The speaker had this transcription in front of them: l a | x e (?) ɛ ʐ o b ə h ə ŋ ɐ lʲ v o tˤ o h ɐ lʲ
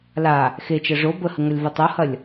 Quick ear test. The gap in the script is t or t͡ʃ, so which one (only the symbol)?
t͡ʃ